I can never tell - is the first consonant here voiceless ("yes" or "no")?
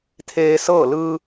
yes